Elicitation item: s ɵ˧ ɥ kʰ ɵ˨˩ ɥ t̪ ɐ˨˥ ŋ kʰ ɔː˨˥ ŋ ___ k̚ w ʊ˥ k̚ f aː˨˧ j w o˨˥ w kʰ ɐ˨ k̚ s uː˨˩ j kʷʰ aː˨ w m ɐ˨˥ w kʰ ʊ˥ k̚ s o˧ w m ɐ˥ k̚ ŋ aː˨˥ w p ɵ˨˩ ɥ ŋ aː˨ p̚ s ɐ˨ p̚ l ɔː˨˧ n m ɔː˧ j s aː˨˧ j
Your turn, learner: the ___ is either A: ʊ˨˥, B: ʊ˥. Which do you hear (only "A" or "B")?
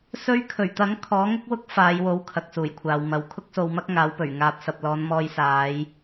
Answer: B